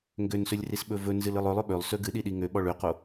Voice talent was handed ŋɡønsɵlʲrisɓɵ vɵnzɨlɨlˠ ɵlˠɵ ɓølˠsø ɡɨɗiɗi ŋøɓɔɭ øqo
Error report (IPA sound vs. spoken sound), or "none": none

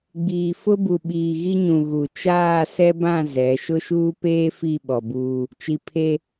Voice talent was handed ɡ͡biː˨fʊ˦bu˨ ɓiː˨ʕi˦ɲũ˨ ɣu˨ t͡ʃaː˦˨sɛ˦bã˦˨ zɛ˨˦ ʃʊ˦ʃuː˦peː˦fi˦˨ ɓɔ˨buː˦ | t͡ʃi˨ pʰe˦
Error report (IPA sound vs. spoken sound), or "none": ʕ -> ɣ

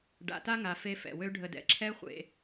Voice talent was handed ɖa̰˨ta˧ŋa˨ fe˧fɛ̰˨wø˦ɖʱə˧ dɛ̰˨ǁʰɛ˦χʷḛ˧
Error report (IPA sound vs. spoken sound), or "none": none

